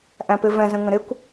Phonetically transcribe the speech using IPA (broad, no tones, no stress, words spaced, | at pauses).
ʔæ̃pɪvɛ̃zə̃ ŋə̃ɾɪkʷ